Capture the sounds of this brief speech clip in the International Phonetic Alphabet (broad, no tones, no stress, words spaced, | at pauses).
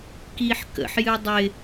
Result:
kiħkə̰ħjɨ dˤɪ